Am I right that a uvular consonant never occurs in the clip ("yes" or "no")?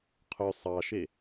no